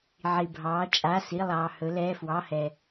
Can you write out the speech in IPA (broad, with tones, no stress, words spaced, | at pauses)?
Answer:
ʕi˩bʱɑː˩˧t͡ʃʼa˩˧˩ si˩˧˩ lˠɑː˩ hɵ˩˧lɛː˩˧˩ fwɑ˩˧˩hɛ˩